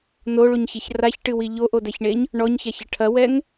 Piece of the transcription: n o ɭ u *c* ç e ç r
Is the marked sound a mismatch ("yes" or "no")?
yes